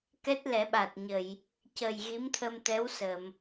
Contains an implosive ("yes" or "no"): yes